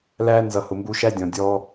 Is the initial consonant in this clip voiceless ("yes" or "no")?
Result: no